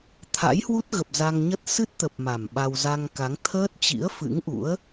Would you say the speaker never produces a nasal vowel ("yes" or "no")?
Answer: yes